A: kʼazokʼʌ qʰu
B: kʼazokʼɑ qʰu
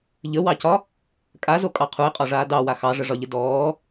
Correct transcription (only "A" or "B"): B